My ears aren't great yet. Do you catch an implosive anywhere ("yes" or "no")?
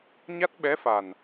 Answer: yes